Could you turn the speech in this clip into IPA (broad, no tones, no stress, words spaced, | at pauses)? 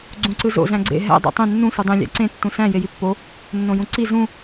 ɡ͡ǀũǀɯzo̰ zæ̃ɡ͡ǀḛ ɦæ̰ dˤo̰tˤẽ nːũ sʷɯdˤẽ lʲæ̰ǀẽ tːũsæ̃ jejipːo | nːõjũǀi zũ